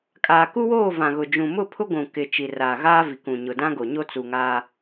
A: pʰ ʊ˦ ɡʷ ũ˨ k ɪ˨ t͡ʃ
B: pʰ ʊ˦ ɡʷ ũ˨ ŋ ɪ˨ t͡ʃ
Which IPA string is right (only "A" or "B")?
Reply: A